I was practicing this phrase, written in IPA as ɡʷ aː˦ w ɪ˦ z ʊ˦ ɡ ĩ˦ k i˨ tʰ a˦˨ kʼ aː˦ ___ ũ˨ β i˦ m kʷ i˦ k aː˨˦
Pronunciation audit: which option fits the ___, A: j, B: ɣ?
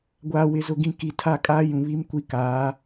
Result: A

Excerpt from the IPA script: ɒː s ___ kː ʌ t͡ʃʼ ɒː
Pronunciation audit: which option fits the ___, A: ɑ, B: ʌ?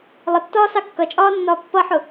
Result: A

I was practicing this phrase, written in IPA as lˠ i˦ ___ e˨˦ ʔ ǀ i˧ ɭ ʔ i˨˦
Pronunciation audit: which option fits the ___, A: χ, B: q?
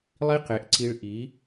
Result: B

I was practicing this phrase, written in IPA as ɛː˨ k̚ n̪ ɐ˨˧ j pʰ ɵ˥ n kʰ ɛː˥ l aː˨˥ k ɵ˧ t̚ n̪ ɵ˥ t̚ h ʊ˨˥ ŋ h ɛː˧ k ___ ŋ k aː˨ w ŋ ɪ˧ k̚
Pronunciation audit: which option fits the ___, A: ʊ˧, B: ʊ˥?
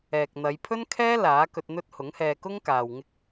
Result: B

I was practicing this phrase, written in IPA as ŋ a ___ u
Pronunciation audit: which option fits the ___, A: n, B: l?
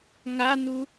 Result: A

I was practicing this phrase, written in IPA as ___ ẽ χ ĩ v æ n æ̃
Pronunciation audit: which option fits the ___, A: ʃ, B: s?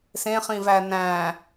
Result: B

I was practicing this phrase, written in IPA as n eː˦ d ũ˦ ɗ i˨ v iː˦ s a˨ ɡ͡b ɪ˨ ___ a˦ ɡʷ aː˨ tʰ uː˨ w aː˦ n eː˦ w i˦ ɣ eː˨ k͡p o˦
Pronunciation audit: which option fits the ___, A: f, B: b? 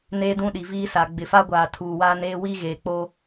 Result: A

